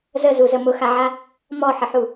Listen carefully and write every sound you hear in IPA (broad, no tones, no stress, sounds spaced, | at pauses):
z ə z u z ə m ʊ x a ʕ a | m ɔ ħ ə ħ u